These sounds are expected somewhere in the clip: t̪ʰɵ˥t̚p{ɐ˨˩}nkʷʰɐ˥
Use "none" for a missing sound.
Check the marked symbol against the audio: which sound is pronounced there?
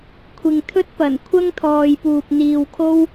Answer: ɐ˨˩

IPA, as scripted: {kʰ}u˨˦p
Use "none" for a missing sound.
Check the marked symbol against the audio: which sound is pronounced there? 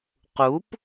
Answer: q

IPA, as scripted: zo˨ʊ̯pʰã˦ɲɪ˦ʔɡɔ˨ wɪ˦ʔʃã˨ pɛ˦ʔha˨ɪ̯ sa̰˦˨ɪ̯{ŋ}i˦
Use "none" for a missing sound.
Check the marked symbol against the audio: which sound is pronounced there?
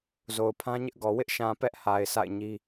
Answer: ɲ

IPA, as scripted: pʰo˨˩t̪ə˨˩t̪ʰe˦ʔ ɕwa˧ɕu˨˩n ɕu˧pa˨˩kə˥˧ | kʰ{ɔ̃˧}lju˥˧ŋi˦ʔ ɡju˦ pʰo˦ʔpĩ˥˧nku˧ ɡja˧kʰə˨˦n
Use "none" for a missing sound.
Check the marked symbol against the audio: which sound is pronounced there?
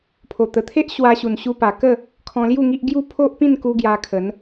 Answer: ɔ̃˧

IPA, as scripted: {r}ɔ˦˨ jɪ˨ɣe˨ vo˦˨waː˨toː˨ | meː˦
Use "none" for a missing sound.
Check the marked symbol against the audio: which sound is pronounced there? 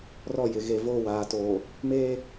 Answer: r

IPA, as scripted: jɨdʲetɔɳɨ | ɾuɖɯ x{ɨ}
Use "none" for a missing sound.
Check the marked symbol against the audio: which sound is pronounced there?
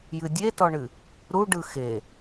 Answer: e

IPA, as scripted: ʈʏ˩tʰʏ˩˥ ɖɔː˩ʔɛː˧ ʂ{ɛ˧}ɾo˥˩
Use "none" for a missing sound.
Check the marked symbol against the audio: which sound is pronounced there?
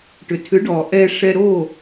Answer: ɛ˧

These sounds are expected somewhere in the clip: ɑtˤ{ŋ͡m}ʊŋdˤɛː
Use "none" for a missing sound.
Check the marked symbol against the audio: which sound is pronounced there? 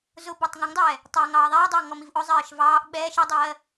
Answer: ŋ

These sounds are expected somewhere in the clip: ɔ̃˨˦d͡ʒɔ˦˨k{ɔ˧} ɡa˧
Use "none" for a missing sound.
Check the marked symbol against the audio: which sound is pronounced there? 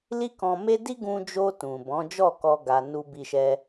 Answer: ɔ˧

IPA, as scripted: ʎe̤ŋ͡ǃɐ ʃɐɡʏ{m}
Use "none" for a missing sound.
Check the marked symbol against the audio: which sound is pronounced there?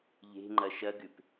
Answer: p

